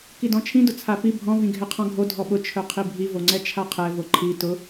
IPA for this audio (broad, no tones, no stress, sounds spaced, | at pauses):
k i d ɔ̃ t͡ʃʰ ĩ d ʊ t͡sʰ a p i bʱ ɔ̃ v ĩ ɡʱ ɛ qʰ ɔ̃ ɡʱ o dʱ ɔ ɓ ʊ t͡ʃʰ œ qʰ i bʱ i v o ŋ͡ǀ ɛ t͡ʃʰ a qʰ ɛ v o ǃʰ i t ʊ